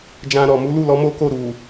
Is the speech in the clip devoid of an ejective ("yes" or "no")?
yes